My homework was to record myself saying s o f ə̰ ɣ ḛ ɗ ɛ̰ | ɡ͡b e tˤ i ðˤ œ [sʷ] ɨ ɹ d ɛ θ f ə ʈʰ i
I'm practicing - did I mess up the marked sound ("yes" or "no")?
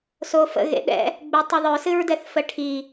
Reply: yes